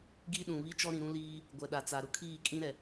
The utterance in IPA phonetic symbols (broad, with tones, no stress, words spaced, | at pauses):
ɡi˦ɗũ˨ βi˦t͡ʃɔ˦ ɾĩ˨ɾũ˦liː˦ | ɡʷɛ˨ɗa˨t͡sa˨ ɾʊ˦kʰiː˦˨kʼĩ˦ ɾɛ˨